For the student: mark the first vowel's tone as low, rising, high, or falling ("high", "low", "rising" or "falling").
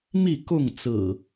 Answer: falling